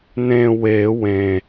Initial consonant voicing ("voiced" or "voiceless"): voiced